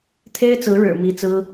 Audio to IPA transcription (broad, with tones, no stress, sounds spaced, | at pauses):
t̪ʰ e˥ ɪ̯ t͡s ɹ̩˧˥ ɻ ɻ̩˨˩ m i˥ t͡s ɹ̩˥